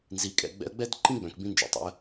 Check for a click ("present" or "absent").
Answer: present